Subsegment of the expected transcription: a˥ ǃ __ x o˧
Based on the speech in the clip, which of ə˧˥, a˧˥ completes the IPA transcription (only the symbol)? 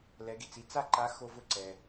a˧˥